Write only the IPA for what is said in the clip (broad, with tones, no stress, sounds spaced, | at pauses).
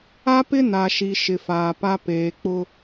a˦ p ɪ˦ n a˨ ʃ i˨ ʃ ɪ˨ f aː˨ p a˦ p eː˨ k͡p ʊ˦